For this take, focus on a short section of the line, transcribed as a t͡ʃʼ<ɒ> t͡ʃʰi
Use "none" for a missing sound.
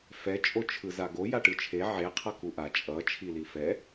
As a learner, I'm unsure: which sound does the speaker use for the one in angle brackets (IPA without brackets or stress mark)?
ʌ